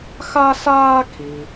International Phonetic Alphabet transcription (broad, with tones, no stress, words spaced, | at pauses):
xa˥saː˥kʰi˩